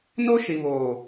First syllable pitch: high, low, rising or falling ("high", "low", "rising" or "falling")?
high